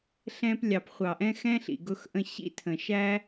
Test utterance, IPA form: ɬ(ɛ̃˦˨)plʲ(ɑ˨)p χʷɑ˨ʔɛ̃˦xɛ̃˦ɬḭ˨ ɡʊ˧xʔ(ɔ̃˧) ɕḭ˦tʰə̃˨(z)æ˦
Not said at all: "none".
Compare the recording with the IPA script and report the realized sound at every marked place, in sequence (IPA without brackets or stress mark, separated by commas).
ɛ̃˧, ɑ˨, ə̃˧, ʃ